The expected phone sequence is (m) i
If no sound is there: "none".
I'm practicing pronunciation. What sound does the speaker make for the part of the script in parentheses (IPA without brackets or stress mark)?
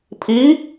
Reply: pʰ